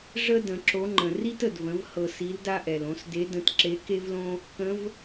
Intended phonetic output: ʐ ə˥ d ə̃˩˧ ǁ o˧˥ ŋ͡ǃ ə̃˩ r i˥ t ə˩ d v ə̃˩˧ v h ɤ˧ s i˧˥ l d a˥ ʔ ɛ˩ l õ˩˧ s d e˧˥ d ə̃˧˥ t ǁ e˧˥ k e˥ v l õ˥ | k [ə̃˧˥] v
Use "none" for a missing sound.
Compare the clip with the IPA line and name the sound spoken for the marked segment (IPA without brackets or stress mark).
ə̃˧˥